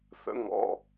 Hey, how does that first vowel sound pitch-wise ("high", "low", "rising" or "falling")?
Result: rising